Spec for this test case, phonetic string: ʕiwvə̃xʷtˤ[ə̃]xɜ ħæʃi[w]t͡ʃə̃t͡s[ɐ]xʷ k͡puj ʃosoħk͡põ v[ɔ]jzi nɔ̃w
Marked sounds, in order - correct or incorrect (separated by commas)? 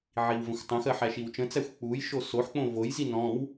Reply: correct, correct, incorrect, incorrect